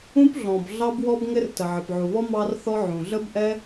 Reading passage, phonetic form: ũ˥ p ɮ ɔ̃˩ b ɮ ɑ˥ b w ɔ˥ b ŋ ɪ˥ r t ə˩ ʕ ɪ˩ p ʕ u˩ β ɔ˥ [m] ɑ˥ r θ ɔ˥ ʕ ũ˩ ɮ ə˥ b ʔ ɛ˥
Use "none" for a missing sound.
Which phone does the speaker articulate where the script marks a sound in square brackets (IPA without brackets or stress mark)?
m